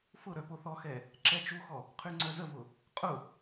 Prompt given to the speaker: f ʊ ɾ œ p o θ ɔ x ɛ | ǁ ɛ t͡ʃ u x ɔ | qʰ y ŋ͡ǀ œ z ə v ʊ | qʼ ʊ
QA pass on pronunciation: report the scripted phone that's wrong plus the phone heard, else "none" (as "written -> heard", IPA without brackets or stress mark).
none